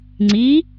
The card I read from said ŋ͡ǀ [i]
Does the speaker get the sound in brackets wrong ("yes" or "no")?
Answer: no